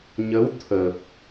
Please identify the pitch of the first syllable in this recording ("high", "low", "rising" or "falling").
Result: rising